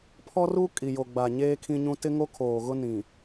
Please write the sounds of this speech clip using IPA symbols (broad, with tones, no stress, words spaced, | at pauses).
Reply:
pʰɔ˦ru˦ kʼi˨jo˨ɡ͡ba˨ ɲeː˦kʰĩ˦ɲũ˦ tɪ˦ŋo˦ kʰoː˨ɣʊ˦nĩ˨